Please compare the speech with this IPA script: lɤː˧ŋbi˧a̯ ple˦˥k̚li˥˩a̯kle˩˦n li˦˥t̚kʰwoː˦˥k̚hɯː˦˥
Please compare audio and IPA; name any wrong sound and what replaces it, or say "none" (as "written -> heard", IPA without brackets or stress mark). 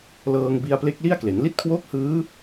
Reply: none